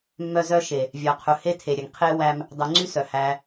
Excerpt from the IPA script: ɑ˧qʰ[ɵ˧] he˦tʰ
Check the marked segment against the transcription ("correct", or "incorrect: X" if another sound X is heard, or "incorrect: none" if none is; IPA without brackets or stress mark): correct